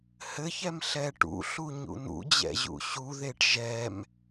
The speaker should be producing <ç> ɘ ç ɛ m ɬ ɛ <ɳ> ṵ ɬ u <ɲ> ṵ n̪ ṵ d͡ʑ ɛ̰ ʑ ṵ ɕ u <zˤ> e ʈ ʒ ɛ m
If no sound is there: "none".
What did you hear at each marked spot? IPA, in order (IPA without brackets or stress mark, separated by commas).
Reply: h, ʈ, ɲ, ð